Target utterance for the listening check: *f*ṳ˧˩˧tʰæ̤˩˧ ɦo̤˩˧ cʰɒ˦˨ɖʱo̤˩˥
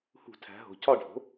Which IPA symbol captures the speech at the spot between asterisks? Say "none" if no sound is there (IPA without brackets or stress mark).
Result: h